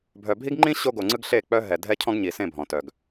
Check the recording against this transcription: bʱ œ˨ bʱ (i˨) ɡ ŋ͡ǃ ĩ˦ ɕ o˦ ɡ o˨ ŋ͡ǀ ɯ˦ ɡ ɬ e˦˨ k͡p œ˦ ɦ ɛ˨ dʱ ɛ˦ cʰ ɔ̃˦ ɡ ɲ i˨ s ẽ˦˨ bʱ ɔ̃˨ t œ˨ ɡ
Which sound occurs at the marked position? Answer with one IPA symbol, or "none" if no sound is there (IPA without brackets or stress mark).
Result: i˦